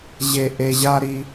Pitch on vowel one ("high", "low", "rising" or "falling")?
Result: low